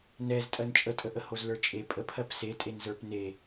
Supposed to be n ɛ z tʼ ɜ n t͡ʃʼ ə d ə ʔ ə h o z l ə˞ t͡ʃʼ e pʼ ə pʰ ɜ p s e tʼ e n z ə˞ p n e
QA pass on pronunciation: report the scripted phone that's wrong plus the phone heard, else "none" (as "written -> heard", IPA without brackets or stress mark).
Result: d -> tʼ